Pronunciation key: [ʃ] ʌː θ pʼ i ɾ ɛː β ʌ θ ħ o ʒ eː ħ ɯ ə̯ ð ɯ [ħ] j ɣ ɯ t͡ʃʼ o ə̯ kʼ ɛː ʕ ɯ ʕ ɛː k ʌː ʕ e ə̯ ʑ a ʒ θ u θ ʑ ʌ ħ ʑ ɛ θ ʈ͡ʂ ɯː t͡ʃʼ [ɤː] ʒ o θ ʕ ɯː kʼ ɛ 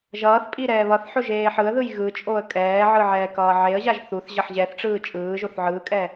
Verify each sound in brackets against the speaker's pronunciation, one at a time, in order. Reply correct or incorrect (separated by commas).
incorrect, incorrect, incorrect